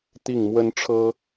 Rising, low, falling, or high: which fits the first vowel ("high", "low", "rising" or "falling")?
falling